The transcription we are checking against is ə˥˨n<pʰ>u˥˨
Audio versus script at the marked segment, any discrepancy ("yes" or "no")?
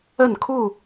yes